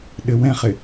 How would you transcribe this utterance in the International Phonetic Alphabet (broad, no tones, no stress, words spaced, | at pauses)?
ɗɘwɛ̃χɪ